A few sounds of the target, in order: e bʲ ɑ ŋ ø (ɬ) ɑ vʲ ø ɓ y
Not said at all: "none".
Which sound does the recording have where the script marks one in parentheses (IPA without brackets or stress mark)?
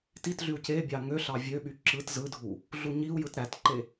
ɬ